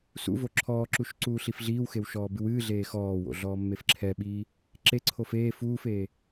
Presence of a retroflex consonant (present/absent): absent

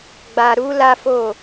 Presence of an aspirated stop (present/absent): absent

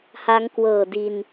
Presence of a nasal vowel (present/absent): absent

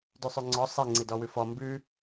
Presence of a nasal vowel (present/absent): absent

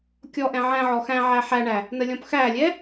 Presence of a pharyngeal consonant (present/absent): present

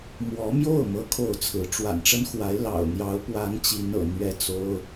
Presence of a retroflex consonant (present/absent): present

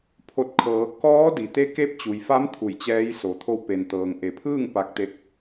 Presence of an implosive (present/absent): absent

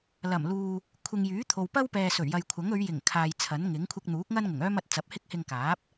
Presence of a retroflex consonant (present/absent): absent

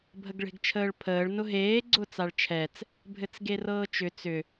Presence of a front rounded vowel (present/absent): present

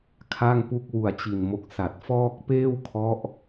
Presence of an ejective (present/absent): absent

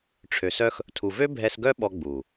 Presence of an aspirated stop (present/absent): present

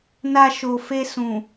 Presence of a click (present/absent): absent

